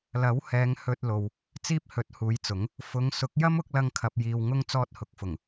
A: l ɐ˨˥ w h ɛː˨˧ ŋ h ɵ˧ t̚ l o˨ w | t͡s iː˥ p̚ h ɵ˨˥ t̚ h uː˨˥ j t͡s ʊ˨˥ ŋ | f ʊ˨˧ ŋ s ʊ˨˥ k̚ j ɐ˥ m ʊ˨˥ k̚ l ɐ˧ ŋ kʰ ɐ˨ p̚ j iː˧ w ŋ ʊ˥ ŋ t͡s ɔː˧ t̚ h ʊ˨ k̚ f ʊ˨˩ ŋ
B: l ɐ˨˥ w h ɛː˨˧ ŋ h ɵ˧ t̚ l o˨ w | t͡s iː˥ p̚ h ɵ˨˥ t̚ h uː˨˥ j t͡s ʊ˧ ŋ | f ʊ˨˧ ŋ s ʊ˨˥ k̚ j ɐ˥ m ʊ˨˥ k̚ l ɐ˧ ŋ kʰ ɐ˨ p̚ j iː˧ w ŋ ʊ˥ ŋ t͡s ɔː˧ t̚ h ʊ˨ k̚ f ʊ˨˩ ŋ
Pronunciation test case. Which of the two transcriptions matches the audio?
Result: A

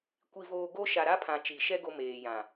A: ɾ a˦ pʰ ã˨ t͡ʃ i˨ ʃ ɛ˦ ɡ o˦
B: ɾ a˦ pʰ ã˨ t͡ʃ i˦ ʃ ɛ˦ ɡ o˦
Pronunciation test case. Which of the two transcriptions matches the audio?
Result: A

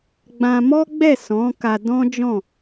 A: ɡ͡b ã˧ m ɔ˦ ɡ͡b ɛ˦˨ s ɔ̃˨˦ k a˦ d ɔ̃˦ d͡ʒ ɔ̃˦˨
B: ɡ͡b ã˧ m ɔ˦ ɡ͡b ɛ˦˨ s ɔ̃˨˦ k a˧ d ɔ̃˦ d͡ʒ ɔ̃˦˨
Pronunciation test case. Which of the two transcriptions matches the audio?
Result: B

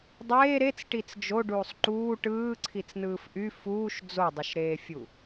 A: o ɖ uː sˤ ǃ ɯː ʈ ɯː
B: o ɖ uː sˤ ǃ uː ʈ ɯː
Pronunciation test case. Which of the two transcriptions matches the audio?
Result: B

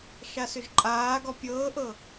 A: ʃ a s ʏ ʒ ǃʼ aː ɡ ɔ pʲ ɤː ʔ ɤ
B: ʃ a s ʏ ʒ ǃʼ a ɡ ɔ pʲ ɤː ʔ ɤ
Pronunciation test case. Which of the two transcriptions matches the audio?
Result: A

